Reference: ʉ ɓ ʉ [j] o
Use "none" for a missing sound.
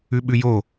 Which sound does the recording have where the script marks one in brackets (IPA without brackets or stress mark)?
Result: j